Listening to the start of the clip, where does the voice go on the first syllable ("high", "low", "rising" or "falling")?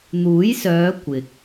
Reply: rising